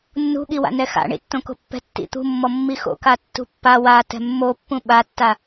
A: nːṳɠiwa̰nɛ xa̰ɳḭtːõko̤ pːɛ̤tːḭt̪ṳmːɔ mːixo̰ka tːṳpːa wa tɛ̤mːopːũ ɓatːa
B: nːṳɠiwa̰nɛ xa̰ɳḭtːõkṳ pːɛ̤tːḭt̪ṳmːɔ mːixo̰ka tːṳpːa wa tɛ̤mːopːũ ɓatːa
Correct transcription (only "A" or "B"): A